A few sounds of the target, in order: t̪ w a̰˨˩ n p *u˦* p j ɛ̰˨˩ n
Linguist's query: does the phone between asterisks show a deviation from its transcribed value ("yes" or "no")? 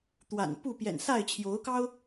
yes